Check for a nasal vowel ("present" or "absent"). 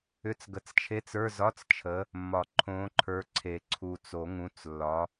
present